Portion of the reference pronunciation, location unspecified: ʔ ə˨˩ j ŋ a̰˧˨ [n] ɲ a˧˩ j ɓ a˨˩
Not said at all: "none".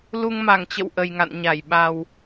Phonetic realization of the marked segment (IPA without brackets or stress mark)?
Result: n